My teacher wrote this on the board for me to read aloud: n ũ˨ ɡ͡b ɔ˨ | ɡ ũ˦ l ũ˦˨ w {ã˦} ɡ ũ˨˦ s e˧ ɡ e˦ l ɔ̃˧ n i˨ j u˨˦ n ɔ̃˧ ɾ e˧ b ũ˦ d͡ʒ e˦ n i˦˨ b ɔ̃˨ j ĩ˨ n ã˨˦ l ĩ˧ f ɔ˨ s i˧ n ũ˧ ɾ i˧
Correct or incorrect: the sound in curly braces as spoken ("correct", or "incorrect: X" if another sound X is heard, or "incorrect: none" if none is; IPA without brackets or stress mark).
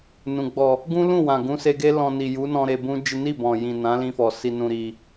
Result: incorrect: ã˨